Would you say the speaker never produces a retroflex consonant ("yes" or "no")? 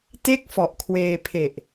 yes